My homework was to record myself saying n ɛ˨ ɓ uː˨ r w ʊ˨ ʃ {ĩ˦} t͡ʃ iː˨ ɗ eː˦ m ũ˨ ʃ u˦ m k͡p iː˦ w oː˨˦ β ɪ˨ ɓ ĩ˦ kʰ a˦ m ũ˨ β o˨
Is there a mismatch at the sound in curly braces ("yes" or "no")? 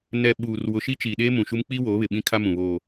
yes